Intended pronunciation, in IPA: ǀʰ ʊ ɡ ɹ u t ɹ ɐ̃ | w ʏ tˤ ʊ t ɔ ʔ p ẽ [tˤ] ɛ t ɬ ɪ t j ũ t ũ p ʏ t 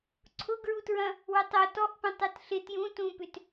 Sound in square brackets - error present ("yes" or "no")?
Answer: no